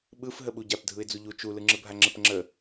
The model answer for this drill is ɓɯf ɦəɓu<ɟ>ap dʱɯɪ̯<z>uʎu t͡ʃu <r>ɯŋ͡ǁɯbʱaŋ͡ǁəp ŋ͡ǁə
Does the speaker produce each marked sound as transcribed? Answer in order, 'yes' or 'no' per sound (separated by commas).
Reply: yes, no, no